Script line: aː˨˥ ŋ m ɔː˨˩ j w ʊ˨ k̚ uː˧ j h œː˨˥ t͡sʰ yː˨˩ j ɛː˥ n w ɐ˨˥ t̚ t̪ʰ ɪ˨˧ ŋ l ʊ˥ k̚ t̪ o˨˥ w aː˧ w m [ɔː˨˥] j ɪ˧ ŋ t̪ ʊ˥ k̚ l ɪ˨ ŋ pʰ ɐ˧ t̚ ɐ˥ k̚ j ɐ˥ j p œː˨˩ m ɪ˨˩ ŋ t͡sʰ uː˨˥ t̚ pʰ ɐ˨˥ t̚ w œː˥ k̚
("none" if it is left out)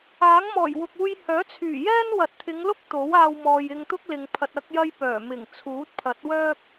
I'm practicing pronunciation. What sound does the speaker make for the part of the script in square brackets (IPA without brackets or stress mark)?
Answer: ɔː˨